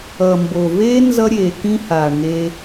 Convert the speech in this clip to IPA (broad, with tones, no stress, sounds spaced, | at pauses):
ʌ˨ m b o˨ v eː˦ n z ʌ˦ ɾʲ eː˨ k ĩ˦ h aː˨ ɳ ŋ eː˦